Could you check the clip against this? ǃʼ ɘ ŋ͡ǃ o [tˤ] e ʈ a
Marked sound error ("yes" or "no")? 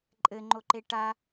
yes